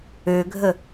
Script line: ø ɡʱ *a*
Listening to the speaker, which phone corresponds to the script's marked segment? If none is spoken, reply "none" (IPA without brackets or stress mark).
ə